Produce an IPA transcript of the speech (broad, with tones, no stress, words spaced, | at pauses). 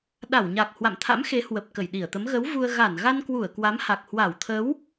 ɗa˧˩wɲa˨˩k̚ hwa̰˧˨mt̪ʰa̰˧˥m xe˨˦hwə˨˩p̚ kə˧˩jɗi˧˩ə̯t̪ə˨˦m ɣə˨˦wvu˧ə̯ ɣa˧˩nɣa˧nkwu˧˩ə̯ kwa˨˦mha˨˩k̚ hwa˧˩wt̪ʰə˨˦w